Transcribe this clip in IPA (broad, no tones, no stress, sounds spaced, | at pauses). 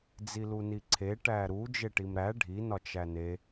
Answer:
d͡z i l u n i ǀʰ e ʈ æ ɾ u d͡ʒ e ʈ i m ɾ æ ɖʱ i n ɒ t͡ʃ æ n e